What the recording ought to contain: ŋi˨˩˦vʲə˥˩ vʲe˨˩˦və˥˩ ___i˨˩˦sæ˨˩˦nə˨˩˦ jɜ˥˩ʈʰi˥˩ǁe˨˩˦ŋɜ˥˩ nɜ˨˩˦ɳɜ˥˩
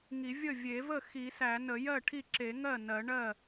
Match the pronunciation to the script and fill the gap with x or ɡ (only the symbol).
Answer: x